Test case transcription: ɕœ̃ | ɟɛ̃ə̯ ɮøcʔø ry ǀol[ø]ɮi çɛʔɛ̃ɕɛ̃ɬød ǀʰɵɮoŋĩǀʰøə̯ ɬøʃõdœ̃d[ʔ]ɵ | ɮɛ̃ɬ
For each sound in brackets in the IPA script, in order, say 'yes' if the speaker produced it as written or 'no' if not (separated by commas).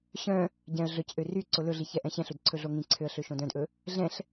no, yes